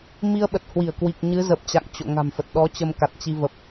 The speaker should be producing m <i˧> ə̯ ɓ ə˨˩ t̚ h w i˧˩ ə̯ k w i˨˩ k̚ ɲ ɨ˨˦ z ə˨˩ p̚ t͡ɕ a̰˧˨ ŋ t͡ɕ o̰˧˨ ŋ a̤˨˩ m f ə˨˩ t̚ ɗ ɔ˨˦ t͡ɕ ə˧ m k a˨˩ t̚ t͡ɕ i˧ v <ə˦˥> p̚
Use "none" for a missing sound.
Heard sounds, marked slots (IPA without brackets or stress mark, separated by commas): i˧, ə˨˩